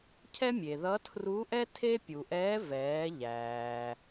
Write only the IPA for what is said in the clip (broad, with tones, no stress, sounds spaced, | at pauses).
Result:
cʰ ɛ˥ mʲ e˩ ð ʌ˧˥ tʰ r u˧˥ ʔ ɛ˥ tʰ e˥ pʲ u˩ ʔ ɛː˧˥ v ɛː˩˧ ʎ æː˩